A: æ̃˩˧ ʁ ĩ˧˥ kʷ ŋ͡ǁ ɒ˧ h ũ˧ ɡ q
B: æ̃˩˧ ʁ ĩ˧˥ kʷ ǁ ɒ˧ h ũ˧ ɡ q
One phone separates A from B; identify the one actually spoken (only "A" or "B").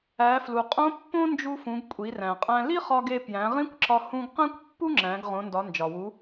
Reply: B